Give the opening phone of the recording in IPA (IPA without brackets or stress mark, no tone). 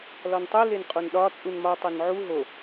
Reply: l